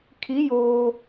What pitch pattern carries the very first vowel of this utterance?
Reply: rising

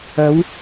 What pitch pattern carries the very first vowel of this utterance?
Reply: rising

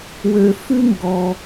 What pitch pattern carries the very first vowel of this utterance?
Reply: low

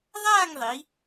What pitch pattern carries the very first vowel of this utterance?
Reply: falling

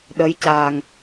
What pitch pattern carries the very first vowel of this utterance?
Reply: rising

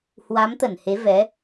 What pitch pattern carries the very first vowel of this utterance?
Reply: rising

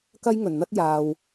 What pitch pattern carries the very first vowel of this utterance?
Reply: high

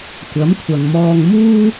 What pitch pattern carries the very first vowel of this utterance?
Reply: rising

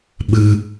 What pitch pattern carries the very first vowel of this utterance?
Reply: high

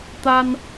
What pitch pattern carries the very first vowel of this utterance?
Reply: high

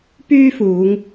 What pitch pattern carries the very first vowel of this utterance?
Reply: high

